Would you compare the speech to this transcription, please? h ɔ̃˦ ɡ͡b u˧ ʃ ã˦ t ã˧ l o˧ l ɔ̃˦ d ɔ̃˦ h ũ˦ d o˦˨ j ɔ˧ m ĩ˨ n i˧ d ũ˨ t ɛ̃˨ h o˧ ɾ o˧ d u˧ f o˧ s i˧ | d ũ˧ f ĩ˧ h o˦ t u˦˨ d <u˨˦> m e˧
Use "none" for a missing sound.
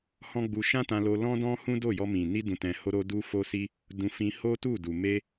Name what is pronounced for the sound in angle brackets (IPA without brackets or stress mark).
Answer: u˨